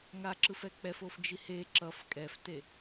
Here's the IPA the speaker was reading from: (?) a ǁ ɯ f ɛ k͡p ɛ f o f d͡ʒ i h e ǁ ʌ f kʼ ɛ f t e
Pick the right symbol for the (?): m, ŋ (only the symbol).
ŋ